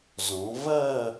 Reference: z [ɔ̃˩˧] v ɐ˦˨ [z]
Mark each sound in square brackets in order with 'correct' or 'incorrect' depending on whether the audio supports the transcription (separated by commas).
correct, incorrect